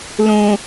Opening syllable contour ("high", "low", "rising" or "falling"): low